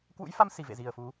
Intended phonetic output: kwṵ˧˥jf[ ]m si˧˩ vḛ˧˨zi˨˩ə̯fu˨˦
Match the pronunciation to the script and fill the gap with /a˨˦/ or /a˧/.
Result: a˧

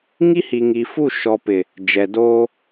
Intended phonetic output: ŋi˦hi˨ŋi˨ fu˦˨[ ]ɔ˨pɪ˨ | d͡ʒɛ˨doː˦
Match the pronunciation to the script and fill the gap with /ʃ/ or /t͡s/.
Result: ʃ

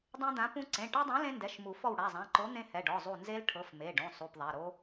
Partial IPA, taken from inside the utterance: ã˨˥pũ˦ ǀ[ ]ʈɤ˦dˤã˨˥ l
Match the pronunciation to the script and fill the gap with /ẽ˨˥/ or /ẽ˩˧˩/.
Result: ẽ˩˧˩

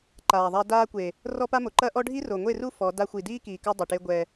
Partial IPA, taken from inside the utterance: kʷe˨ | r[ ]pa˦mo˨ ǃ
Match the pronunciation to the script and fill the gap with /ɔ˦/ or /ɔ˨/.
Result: ɔ˦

